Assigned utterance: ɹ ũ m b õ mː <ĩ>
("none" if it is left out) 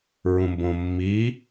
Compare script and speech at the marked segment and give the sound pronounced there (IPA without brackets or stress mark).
i